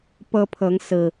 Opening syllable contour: high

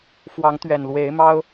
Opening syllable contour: rising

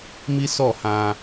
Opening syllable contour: high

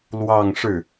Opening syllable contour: falling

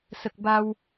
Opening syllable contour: low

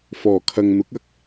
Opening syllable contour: low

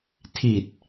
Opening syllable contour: low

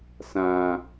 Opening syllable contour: high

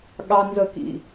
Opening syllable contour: high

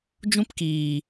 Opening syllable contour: high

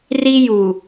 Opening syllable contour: high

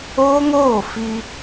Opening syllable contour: high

